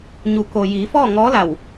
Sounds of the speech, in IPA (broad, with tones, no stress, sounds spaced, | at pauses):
ɲ u˩˧ k o˩ j iː˩˧ f ɔː˥˨ ŋ ɔː˧˥ l a˧˩ w